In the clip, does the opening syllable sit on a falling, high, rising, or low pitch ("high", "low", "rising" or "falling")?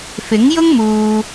rising